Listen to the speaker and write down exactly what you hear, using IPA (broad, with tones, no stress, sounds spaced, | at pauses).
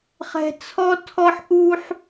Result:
χ ɛ̤˥ t͡sʰ ɔ˥ tʰ ɔ˥ ħ ʔ u˥ ħ